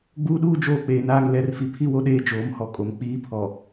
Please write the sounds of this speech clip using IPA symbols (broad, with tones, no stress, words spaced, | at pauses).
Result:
ɡ͡buː˦ɗuː˦ d͡ʒoː˦k͡peː˨naː˦ŋ lɛ˨˦rfi˨ pʰi˦wo˦ ɗeː˦d͡ʒoː˨˦mhɔ˨kʼo˨m k͡piː˦pʰɔ˨